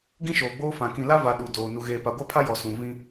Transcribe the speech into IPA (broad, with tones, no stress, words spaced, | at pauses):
ɡĩ˦ʃoː˨ɡ͡boː˦fã˨ kĩ˨la˦ va˨ ɗu˨ doː˨ nu˨ɣeː˨ pa˨ɡʷa˦pʰa˦ jɔ˨ sũ˨ vĩ˦